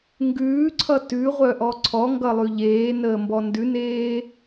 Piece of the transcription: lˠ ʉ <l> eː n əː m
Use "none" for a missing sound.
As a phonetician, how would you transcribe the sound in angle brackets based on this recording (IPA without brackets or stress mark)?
ʎ